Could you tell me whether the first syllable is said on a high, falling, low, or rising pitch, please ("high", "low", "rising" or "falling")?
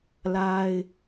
high